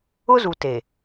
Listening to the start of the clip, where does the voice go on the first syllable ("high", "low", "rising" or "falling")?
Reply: high